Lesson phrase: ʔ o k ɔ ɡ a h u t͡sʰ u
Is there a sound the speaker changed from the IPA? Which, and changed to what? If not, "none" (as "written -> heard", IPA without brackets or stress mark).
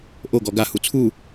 k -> ɡ